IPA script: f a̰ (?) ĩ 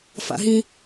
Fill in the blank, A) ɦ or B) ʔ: A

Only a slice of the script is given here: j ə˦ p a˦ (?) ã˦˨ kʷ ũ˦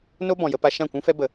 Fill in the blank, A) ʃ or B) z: A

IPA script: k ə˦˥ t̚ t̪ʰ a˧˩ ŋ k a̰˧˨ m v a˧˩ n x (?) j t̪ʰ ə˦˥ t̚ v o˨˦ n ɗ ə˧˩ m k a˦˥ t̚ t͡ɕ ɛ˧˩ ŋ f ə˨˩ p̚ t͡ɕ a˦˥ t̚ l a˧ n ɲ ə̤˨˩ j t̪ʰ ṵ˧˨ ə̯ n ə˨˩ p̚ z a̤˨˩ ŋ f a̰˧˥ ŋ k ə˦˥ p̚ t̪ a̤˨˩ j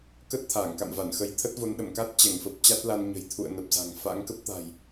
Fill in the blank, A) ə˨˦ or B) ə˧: A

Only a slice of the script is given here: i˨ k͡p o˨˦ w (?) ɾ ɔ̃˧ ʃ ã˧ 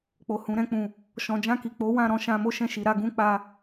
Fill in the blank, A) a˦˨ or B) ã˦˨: B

